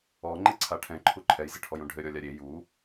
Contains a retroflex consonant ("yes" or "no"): yes